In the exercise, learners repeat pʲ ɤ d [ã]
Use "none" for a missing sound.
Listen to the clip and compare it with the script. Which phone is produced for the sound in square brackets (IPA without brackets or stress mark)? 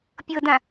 ã